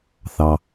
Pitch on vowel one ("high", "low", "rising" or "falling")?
low